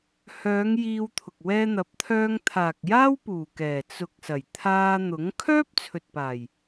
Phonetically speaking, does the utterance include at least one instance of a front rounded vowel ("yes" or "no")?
yes